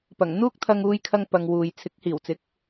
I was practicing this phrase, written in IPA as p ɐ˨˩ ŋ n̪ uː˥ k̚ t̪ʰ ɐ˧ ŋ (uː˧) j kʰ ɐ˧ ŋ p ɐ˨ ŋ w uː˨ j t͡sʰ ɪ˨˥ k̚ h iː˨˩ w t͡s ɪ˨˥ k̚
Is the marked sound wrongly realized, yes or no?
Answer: no